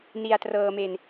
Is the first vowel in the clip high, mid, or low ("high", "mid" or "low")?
high